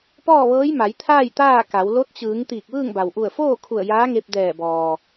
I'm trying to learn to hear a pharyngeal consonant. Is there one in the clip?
no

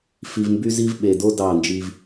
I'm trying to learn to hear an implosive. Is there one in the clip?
yes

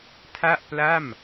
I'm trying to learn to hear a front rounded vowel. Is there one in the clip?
no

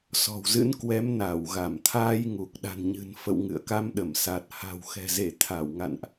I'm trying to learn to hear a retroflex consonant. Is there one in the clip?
no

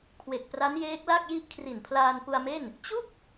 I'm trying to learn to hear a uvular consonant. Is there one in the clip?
no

